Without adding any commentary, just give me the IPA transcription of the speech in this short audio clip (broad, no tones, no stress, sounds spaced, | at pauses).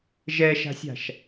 ʒ ɛ ʃ a̤ sʲ a̤ ʃ